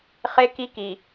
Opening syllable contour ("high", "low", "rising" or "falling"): high